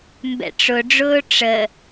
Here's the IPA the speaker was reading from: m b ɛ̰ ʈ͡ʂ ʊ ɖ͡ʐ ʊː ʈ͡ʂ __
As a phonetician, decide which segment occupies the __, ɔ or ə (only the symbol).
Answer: ə